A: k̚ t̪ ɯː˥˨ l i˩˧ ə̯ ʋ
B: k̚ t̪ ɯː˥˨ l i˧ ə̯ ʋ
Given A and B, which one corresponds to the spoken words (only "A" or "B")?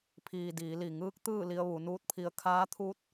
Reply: B